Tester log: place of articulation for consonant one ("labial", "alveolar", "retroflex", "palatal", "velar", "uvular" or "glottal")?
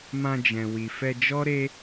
labial